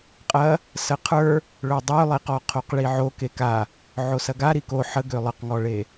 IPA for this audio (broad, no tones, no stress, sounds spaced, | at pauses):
qʼ ɐ | s ə qʰ ə˞ | ɭ ɵ dˤ ø lˠ i q ɔ qʰ o q ɭ i ʕ o k e k a | ʕ o s ɐ ɡ a ɾ i k o ħ ə ɡ ø lˠ ə q ŋ ɔ ɭ e